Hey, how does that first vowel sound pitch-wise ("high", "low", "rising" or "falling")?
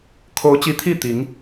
rising